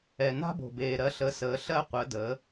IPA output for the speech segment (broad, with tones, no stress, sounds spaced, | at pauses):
ɛ˩ n a̤˧ b o̤˩ b eː˩ ɾ ɜ˩˧ ɬ ə˩˧ s əː˩˧ ɬ ɜ˧ qʷ əː˩˧ d əː˩˧